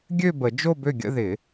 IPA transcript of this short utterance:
ɡʲ ø˥˧ b ə˨˩˦ d͡ʒ o˥˧ b ø˥˩ ɡʲ ə̰˥˧ ð ɪ˨˩˦

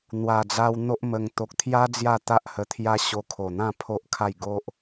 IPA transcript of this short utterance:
n̪ w a˨˩ d͡z a˧ w n̪ o˦ ʔ m ə˧ ŋ t̪ o˨ k̚ t̪ʰ j a˦ d͡z j a˥˧ t̪ a˦ ʔ h ə˧ t̪ʰ j a˦ ɕ o˧ kʰ o˨˩ n̪ ã˥˧ pʰ o˦ ʔ kʰ a˥˧ j ɡ o˦ ʔ

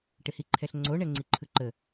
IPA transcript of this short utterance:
ʈ ɪ h i ǃʰ ɛ ɬ ŋ͡ǀ o ɳ ɛ ŋ͡ǀ i ǃʰ ɯ ǃ ə

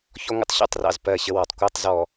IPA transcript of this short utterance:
ç ɔ˦ ŋʷ ə̰˦ tˤ ɕ ṵ˦˨ tˤ r ɑ̰˨ z p ɜ˦˨ ɕ ə˦ w ɒ˨ tˤ kʷ æ˦ tˤ z ɔ˨

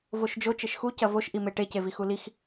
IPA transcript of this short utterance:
v o ʃ d͡ʒ o t͡ʃ ɘ ʃ x u c ɐ v o ʃ ʔ i m e ʈ e c e v i x u l i x

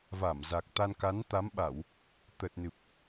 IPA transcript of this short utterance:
v a˧˩ m z a˨˩ k̚ t̪ a˧ n k a˨˦ n t̪ a˨˦ m ɓ a˧˩˨ w | t̪ ə˨˩ t̚ n ɨ˨˩ p̚

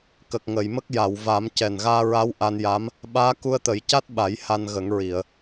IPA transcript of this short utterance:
k ə˨˩ k̚ ŋ ə˨˩˨ j m ə˦˥ k̚ j a˨˩˨ w v a˨˩˦ m c ɛ˨˩ n ɣ aː˧ ɹ a˧˥ w ʔ a˧ n j a˧˥ m | ɓ aː˧˥ k u˧ ə̯ t̪ ə˨˩˦ j c a˦˥ t̚ ɓ a˨˩˦ j h a˧ n ɣ ə˨˩˦ ŋ ɹ i˨˩˨ ə̯

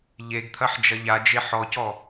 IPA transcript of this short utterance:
ʎ e ɡ t̪ʰ ɐ ħ d͡ʒ ɐ ʎ a d͡ʒ e ħ ɔ c ɔ

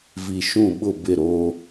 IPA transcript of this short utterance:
v i˨ ʃ ũ˦˨ ɓ ʊ˦˨ b ɪ˦˨ ɾ oː˦

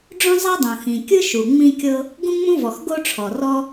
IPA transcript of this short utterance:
ɖ͡ʐ õ˥ zˤ a˥ dˤ õ˩ x ĩ˩ kʲ ɯ˥ ʃ u˩ ŋ͡m ĩ˥ kʲ ɤ˥ | ɡ ũ˥ ŋ͡m ũ˥ v ɔ˩ x ɡ o˥ ʈ͡ʂʰ ɔ˩ r ɔ˥

